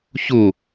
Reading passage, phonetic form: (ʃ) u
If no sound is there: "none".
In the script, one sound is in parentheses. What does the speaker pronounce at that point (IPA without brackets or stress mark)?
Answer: ç